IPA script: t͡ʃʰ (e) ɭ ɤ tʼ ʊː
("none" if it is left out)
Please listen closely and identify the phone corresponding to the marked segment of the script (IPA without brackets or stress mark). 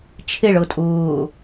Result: e